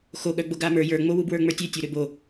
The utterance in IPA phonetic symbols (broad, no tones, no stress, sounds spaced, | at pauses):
x o ɠ œ ɡ͡b o ɡ a m ə˞ j ə˞ ŋ͡m o w u b w ə˞ ŋ͡m ə˞ tʲ ø tʲ o ɾ ø b o